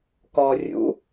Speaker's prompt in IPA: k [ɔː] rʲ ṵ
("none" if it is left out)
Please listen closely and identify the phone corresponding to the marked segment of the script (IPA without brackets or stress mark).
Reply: ɔː